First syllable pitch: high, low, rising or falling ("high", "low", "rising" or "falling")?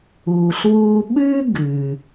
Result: low